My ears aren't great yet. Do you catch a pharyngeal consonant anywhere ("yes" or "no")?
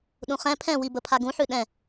yes